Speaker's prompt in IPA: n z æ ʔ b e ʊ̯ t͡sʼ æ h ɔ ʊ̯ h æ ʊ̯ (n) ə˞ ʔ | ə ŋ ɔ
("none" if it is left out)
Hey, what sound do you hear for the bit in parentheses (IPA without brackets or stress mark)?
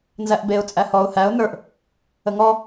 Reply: n